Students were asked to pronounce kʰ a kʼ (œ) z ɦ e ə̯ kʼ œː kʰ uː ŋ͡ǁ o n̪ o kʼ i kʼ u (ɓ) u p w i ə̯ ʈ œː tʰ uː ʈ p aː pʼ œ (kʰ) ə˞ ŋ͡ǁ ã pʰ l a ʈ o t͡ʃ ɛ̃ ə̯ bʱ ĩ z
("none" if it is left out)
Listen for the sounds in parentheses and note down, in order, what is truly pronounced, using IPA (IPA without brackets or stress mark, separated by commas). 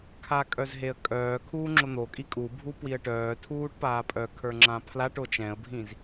œ, bʱ, kʰ